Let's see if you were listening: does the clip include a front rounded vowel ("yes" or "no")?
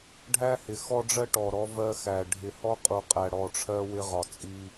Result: no